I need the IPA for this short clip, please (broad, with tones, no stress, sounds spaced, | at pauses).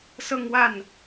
s ɤ˥˧ ŋ w a˥˩ n